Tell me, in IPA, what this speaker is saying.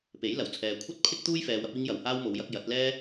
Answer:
p e˨˥ j l ɐ˨˩ w t͡sʰ ɛː˨ kʷʰ ɐ˥ t̚ pʰ ɪ˥ k̚ t̪ uː˥ j f ɛː˨ w ɐ˧ p̚ iː˧ ŋ j ɐ˨ w h aː˥ w m o˨˧ w j ɐ˧ k̚ j ɐ˨˥ t̚ l ɛː˥

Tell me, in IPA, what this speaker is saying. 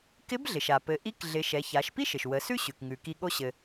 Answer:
k ɪ˧˥ b ɮ ɪ˩ ʃ a˩ p ɘ˩˧ ʔ i˧˥ k ɮ ɪ˩˧ ʃ ɛ˩˧ ç a˩˧ ʃ p i˥ ʃ ɘ˩ ʃ w ə˩˧ s ʉ˥ ɕ ʉ˩ k ŋ ʉ˩ k i˧ ɠ o˧ ɕ ɘ˩

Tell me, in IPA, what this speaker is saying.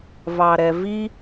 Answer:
v ɑ ɾ ɛ v i

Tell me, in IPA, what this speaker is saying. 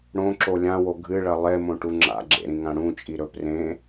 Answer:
ɽ õ ǁ o lʲ ã w o ɡʱ ɨ ɭ ɐ lˠ e m õ ʈ u ŋ͡ǁ a̰ ɡ͡ǁ ḛ ɾ ĩ ŋ ã ɽ ũ t͡ʃʼ i ɾ ɵ p r ẽ

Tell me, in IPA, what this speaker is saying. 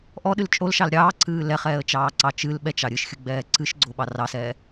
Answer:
ʔ ɔ ɗ ɨ l t͡ʃʼ o l ʃ ɑ l ɾʲ ɑː ǀʰ ɨː l ɛ χ ɛː ə̯ t͡ʃ ɑː ǀ ɑ t͡ʃ ɨ l ɓ ɛ t͡ʃ ɑ ɾʲ ɨ ʃ xʲ ɨ ɡ͡b ɛː ǀ ɨ ʃ ɡ͡ǀ o ɓ ɑ r ɑ s ɛː

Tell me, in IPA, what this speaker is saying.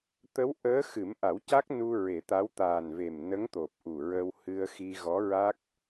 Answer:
t̪ ə˧˥ w ʔ əː˧˥ x ɨ˨˩˦ m ʔ a˨˩˦ w c a˦˥ k̚ n u˧ ɹ e˨˩˦ t̪ a˧˥ w t̪ aː˨˩ n v e˨˩ m n ə˧˥ ŋ t̪ o˨˩ p̚ ʔ u˨˩ ɹ ə˧ w h ɨ˧ ə̯ x i˧ ɣ ɔ˧˥ ɹ a˦˥ k̚

